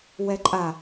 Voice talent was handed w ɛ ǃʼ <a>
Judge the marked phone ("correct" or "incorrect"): correct